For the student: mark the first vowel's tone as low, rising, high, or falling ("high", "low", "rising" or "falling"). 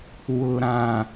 low